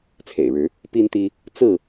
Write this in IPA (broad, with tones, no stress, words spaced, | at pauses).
t͡sʰḛ˨˩ɪ̯ɻɻ̩˨˦ | pi˦nt̪i˦ | t͡sɹ̩˥˨